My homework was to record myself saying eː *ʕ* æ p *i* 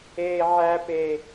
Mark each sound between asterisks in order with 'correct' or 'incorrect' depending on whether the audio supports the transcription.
correct, incorrect: e

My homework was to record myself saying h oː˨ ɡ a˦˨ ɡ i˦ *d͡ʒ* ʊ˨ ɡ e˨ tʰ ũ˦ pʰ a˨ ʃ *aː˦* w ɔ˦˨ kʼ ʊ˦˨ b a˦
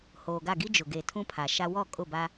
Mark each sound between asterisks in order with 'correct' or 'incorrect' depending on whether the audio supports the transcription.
correct, incorrect: a˦

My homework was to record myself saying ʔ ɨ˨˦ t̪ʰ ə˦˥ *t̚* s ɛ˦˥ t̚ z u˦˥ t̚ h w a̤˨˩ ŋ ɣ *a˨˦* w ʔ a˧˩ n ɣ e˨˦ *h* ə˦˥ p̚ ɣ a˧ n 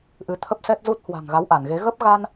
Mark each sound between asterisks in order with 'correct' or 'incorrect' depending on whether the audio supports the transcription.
incorrect: p̚, correct, incorrect: ɣ

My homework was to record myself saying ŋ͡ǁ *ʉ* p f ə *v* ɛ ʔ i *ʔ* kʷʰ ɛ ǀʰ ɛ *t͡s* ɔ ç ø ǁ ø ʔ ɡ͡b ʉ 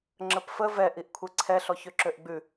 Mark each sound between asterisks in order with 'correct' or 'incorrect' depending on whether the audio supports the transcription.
incorrect: ə, correct, correct, incorrect: ɬ

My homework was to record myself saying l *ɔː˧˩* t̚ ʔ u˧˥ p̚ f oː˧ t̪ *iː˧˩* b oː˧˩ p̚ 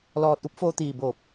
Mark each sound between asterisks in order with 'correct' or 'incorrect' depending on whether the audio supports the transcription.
correct, correct

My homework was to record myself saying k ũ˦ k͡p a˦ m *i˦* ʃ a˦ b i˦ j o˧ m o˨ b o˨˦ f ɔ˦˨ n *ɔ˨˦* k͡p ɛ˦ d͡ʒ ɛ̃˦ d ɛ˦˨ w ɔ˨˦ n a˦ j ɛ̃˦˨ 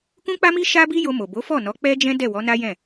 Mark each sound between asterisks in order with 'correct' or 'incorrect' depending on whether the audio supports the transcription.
correct, correct

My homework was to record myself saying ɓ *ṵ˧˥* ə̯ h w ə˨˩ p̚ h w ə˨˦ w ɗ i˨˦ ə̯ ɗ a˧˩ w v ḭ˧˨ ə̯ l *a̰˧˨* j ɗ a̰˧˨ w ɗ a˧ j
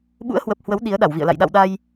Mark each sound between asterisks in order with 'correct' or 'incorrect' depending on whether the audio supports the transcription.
correct, correct

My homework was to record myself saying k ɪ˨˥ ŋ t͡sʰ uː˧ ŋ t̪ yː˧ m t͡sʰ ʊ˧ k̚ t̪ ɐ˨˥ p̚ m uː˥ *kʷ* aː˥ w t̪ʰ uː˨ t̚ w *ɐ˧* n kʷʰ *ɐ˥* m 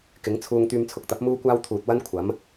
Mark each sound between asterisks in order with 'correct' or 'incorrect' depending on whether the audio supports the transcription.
correct, incorrect: ɐ˥, incorrect: ɐ˨˥

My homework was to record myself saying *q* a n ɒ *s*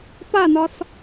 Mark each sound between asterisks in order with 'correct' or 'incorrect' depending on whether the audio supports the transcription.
incorrect: p, correct

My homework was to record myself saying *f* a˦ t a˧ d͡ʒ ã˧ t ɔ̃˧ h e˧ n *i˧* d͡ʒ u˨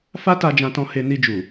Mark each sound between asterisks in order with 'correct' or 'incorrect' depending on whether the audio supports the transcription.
correct, correct

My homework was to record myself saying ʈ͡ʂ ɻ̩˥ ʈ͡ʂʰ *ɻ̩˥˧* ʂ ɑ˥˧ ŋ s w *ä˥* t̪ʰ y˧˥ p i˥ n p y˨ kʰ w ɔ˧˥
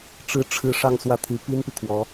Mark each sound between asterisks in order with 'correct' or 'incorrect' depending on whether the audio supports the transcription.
correct, incorrect: ä˥˩

